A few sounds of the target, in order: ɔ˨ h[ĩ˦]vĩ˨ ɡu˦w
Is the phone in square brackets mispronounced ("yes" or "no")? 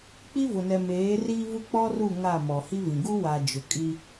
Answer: yes